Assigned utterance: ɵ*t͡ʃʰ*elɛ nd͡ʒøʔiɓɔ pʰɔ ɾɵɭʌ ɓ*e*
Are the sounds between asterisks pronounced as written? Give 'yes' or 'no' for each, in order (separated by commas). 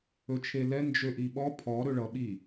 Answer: yes, no